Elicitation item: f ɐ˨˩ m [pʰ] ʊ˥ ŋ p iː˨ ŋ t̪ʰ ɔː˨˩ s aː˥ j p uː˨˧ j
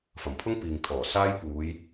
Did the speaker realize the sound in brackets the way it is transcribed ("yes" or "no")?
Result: yes